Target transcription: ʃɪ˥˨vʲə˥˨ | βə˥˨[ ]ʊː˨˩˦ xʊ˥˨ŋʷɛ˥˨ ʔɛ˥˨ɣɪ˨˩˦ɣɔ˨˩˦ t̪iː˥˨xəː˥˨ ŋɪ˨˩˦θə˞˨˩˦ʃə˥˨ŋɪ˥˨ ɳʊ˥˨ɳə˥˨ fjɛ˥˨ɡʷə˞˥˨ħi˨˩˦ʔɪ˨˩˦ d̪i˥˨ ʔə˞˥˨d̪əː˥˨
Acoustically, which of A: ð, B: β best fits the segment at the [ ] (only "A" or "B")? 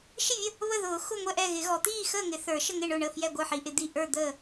A